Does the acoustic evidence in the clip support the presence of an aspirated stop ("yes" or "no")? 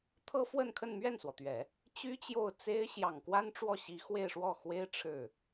yes